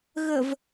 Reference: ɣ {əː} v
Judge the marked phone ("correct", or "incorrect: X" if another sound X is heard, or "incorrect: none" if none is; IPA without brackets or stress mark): incorrect: ə